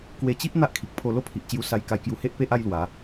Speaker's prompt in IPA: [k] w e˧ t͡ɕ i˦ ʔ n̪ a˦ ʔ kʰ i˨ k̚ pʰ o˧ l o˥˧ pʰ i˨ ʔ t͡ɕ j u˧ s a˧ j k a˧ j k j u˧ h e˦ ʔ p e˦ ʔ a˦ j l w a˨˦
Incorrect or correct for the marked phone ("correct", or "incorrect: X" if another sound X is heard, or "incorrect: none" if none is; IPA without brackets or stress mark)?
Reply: correct